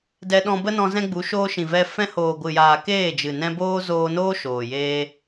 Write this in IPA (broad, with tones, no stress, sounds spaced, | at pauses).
d ɛ˧ ɗ ɔ̃˧ b ə˦ n ɔ̃˧ z ɛ̃˦ ɡ͡b u˨˦ ʃ oː˧ ʃ ĩ˨ v ɛ˧ f ɛ̃˧ h oː˨ ɡʷ ɨ˨ j aː˨ k eː˦˨ d͡ʒ ɨ˨ n ɛ̃˧ b oː˦ z oː˧ n oː˦ ʃ oː˨ j eː˧